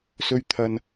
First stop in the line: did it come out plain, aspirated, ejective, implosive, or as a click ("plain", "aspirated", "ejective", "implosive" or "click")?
aspirated